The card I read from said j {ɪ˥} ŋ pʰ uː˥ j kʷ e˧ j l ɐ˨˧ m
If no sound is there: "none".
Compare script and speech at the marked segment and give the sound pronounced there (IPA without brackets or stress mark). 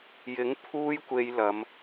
ɪ˨˥